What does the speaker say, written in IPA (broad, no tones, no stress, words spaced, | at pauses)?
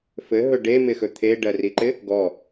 fɘɦɵ ɖemɪxɵ t̪ʰeɖɜriǃɪ | ɡɔ